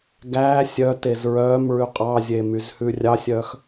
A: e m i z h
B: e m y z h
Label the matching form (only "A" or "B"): B